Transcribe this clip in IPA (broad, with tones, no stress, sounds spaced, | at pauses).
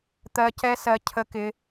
t̪ ɜ˧ c ɛ˦ s ɜ˧ cʰ ə˧ k ɪ˧